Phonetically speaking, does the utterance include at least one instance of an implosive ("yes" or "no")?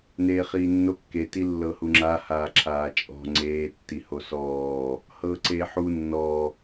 no